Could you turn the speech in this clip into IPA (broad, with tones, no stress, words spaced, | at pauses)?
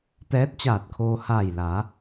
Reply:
t̪ɛː˧˥t̚t͡ɕaː˧˩t̚kʰoː˧ haː˧˩jla˩˧